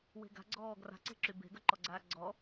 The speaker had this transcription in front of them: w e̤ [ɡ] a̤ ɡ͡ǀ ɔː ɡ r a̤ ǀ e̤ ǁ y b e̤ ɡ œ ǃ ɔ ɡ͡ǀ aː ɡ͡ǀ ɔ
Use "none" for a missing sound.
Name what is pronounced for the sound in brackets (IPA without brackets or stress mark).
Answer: ɡ